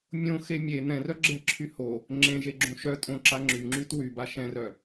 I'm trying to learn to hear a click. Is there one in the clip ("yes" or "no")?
yes